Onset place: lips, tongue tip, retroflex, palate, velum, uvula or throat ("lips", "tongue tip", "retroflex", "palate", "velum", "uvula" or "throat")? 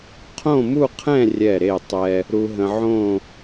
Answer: uvula